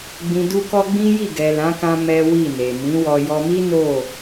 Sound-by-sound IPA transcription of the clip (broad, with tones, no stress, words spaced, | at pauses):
ɡ͡bĩ˨du˧kɔ˧ ɡ͡bĩ˦ji˦˨ ɡɛ˨lã˨˦kã˧ mɛ˦wi˦˨ne˨ mĩ˨˦wɔ˧ jɔ˧mi˦ no˦˨